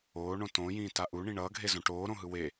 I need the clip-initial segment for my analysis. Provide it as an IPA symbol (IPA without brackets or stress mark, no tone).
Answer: oː